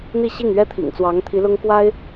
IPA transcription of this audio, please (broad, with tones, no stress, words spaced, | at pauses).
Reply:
n̪i˥˧ɕi˥˩ŋ ɥɛ˥t̪ʰḭ˨˩ŋ t͡swɑ˧˥ŋt̪ʰi˧˥lʊ˥ŋkwa˥ɪ̯